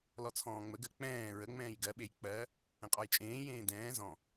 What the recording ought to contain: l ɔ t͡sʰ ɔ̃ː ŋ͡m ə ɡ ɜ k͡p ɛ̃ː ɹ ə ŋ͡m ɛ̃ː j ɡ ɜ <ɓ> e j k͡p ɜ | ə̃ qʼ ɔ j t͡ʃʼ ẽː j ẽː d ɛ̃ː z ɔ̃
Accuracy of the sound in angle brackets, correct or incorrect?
correct